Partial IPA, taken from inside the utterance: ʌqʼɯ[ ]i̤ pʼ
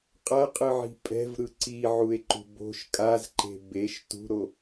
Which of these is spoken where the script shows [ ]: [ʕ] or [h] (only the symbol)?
ʕ